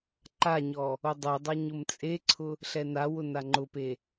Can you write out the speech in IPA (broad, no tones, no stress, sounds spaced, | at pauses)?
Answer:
ǃ a ɲ ɔ | o dˤ o dˤ a ɲ ʊ m t͡sʼ e ǀʰ ʊ | ɬ ɛ n a w ʊ n a ŋ͡ǃ ʊ p e